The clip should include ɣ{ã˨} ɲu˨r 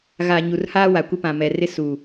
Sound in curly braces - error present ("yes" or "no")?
yes